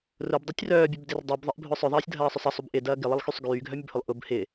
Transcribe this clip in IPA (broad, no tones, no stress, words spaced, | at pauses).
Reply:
rʊbdˤitʲ rœːbʲœbdɪr dˤibðˤɪʔbʱʊ sˤœðˤɐːsʲdʱɐːsˤʏsˤ ɐsˤub ʔɪdɐː ɡɪlˠɪlˠxysˤ ɡyːɡʱœmʲɐbhʊlˠ ʔʊb hɪ